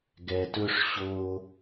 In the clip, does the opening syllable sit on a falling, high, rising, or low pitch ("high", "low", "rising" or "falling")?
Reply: low